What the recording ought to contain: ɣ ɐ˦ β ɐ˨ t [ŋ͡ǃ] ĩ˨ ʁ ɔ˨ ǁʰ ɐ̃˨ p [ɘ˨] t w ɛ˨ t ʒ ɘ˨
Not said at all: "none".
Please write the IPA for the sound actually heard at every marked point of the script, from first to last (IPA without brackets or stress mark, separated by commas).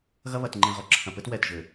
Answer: ŋ͡ǃ, ɘ˦